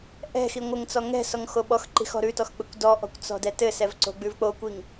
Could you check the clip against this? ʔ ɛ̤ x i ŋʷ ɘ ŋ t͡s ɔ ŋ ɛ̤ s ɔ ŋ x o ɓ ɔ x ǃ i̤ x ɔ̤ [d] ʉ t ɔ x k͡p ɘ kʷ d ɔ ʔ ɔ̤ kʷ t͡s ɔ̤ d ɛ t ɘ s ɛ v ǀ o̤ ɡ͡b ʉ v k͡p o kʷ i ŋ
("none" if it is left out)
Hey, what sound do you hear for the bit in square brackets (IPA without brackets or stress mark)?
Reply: ɾ